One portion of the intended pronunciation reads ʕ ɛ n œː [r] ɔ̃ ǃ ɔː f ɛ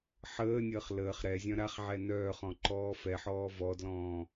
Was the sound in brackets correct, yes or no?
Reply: no